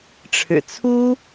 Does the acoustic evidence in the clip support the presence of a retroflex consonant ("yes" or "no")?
yes